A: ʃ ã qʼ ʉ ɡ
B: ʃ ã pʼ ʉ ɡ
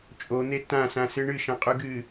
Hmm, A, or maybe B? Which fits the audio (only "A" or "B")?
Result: A